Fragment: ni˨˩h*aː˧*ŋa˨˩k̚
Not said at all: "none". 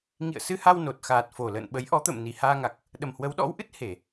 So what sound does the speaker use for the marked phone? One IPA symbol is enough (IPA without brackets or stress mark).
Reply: aː˧